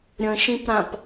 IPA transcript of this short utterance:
ɾʲ ə̃ ʃ ĩ p ɾ ã p

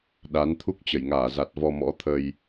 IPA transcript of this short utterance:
ɗ a˨˦ n t̪ʰ u˦˥ k̚ t͡ɕ ə˧˩ j ŋ aː˧˩ z a˨˩ t̚ v ɔ˧ m ɔ̰˧˥ t̪ʰ ə˧ j

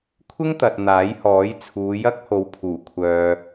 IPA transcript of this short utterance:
kʷʰ ɪ˥ ŋ t̪ ɐ˨ t̚ n̪ aː˨˥ j h ɔː˨˥ j t͡sʰ uː˨˧ j ɐ˥ k̚ h o˨˧ w pʰ uː˨˩ kʷʰ œː˨

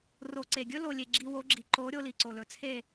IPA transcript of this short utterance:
r o˨ ǀ e˨ ɡʲ ɵ˦ l o˨ lʲ e˨ ɡ͡ǁ i˧ w o˨˦ ɡ͡ǁ i˨ ǃ o˨˦ ɾʲ o˧ l i˨ ǀ o˨ l ɵ˨ t͡sʰ e˦˨

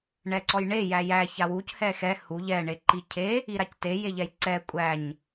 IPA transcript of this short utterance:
ɳ ɛ ǀ ɔ j ɳ e j æ j æ ç a w u c h ɛ x ɛ h u ʎ ɛ ɳ e ǃ i cʰ e | i ɾ a c t e j e ʎ ɛ j ǀ ɛ kʷʼ æ ɲ

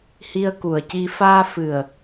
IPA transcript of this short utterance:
h i˧ ə̯ k u˨˩ ə̯ c i˧ f aː˧ f ɨ˨˩ ə̯

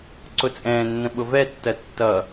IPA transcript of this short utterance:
ǀ ʊ t͡sʼ ɛ̃ː nː ə̃ ɓ ʊ v ɛ tː ɜ tː ʌ

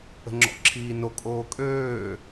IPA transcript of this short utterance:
ə̤ ŋ͡ǁ ɔ̰ ǁʰ iː n o kʼ oː kʼ øː

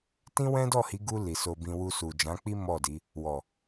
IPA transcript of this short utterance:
t ĩ˦ w ɛ̃˦ d ɔ˦˨ h i˨˦ ɡ u˧ l i˨ s o˧ b ĩ˧ w u˧ s u˨ d͡ʒ ã˨˦ k͡p i˦ m ɔ˦˨ d i˨˦ | w ɔ˨

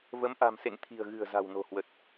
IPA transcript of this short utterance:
v ə˨˦ m ʔ a̤˨˩ m s ḛ˧˨ ŋ t̪ʰ i̤˨˩ ə̯ ɣ ɨ̤˨˩ ə̯ z a̤˨˩ w n o̤˨˩ h w ə˨˩ t̚

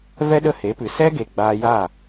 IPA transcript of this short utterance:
v ɛ˦ ɗ ə˦˨ h e˨˦ p ɨ˨ s ɛ˦ ɡ e˨ ɡ͡b aː˧ j aː˦˨

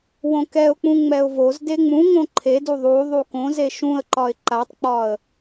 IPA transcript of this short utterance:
w õ k ɛ ʊ̯ k͡p ũ ŋ͡m ɛ ʊ̯ v o z d e ŋ͡m ũ ŋ õ ǃʰ e d u ðˤ u ðˤ u k õ z e ʃ ũ ə̯ ǃ ɒ ɪ̯ ǃ a tˤ k͡p ɒ ə̯

